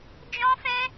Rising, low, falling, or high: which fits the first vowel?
high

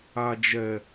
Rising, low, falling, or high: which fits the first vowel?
low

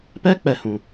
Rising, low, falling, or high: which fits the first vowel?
high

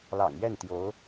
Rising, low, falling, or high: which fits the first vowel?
low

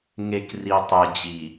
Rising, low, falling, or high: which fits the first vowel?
low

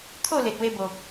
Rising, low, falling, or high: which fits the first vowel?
falling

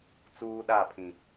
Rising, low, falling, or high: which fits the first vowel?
high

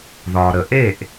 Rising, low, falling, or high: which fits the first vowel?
low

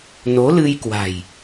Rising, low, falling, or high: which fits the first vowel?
rising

